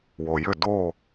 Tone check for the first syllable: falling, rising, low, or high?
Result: low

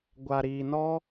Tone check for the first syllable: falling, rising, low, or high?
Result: low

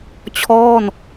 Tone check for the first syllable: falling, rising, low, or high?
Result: falling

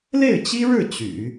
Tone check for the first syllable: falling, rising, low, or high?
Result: falling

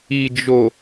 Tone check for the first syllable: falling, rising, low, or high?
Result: low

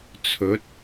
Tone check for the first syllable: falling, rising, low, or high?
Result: rising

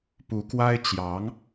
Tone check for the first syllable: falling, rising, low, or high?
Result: rising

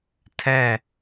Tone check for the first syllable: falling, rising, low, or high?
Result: falling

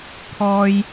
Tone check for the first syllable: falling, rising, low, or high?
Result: low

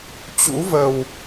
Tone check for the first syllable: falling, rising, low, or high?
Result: rising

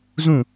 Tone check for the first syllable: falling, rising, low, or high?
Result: falling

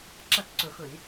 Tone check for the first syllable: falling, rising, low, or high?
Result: falling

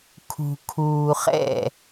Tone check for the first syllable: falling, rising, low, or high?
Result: low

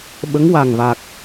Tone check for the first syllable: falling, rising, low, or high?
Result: rising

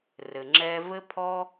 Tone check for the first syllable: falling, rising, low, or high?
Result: low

